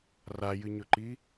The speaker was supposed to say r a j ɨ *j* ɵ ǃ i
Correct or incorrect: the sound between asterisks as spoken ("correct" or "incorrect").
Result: incorrect